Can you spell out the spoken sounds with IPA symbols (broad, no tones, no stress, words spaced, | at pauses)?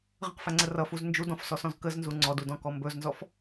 ʁə̃qfæŋ͡ǀə rʌfuz nd͡ʒudɔ̃fsɔsɔ̃z kəznzu ŋ͡ǀɔdudɔ̃kɔ mbɵznzɔf